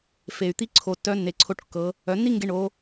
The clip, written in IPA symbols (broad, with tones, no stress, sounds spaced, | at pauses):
f e˩ y̯ t̪ i˥ ǀʰ o˩ tː œ˧˥ nː e˩˧ ǀʰ o˧ ʈ kː ɤ˩˧ | œ˩˧ nː i˥ ŋ ɡ e˧ ɳ o˩˧